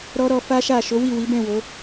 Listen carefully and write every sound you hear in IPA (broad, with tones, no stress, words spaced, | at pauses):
ɾɔ˦ɾɔ˧ fa˦ʃa˦˨ ʃo˨˦wi˦˨wi˨˦bɛ̃˦˨ wo˨˦